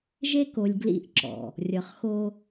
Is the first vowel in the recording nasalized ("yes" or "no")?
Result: no